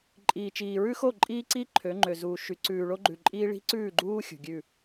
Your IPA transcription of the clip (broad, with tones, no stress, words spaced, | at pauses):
ǃʼiː˨t͡ʃiː˨ɹʉ˦xo˦˨ ǃʼiː˦ǀi˦ ǃʰø˨˦ŋ͡ǃø˨zuː˨ ʃy˨ǀʉː˨ ɭo˦ɡ͡ǃʉ˨ǃʼiː˦ ɭi̤˦ǀʉː˦˨ɡ͡ǃuː˦ xʲṳ˨ɡʲʉ˦˨